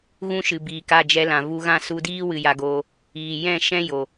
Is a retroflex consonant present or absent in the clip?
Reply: absent